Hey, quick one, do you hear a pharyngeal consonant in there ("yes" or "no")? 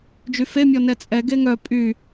no